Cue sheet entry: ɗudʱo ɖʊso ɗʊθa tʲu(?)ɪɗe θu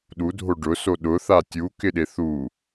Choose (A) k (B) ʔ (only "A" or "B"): A